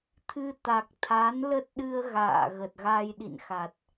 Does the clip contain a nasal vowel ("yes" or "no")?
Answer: no